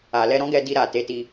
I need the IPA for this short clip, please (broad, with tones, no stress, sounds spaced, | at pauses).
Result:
a˨ l ɛ˧ ɾ ɔ̃˦ ɡ ɛ˧ d i˧ ɾ a˨ t e˨˦ t i˧